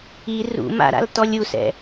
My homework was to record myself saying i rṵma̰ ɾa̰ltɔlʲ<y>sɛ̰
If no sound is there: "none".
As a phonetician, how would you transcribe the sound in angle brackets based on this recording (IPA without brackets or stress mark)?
u